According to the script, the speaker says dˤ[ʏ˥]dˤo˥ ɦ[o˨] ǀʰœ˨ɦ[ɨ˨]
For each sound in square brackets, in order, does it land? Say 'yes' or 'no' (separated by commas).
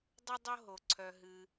no, yes, yes